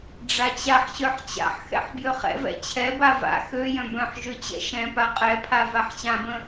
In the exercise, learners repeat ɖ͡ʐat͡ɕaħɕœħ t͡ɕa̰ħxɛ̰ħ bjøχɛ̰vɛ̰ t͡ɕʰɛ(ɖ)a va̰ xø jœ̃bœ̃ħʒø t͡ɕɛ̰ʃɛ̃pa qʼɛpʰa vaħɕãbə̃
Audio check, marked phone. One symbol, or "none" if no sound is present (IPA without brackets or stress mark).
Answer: b